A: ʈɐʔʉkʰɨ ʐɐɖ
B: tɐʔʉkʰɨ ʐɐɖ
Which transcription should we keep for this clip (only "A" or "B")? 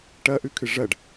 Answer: A